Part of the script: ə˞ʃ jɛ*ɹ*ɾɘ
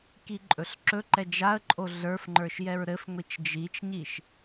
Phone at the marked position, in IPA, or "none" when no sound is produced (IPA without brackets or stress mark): ɹ